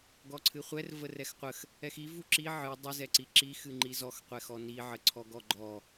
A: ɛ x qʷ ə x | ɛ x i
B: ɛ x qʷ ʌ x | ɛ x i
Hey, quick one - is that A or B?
A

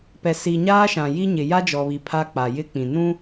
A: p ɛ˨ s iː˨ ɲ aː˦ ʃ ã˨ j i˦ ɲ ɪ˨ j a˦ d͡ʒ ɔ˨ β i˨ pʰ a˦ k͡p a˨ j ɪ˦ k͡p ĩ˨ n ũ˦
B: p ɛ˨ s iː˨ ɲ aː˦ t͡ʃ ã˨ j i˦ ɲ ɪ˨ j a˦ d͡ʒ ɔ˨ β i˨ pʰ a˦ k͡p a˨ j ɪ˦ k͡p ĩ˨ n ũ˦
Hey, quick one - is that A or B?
A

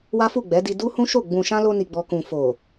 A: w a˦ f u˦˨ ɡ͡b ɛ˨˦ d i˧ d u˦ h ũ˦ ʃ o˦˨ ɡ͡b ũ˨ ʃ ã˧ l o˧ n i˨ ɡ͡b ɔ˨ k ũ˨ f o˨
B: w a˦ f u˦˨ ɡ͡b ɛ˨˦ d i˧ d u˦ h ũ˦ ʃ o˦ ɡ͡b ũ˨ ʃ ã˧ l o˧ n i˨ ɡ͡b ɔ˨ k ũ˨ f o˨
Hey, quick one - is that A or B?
A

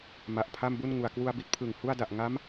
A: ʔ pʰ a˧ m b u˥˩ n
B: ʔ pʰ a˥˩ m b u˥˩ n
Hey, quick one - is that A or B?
B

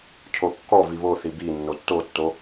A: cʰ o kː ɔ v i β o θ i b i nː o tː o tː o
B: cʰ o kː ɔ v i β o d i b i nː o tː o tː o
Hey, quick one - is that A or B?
A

